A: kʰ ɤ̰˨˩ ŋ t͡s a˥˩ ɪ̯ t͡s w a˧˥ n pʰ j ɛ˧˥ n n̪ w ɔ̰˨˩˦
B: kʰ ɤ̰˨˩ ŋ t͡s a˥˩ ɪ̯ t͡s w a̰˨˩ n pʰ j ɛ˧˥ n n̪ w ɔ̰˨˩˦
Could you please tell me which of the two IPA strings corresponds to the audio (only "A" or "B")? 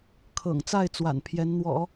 B